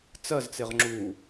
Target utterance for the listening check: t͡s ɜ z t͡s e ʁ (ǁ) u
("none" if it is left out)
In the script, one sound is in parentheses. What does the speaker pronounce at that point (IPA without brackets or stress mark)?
ŋ͡ǁ